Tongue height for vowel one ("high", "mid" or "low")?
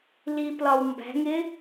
high